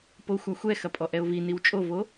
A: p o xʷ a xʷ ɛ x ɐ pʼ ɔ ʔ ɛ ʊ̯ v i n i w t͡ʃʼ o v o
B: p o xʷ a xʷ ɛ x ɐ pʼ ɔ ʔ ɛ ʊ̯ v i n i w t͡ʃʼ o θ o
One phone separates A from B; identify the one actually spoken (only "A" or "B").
A